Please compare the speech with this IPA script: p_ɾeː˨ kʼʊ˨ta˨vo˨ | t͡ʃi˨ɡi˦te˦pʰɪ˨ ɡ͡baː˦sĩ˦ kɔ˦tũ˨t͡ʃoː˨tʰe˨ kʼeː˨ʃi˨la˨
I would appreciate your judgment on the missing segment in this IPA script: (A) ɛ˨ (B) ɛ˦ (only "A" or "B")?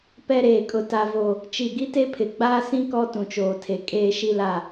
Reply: B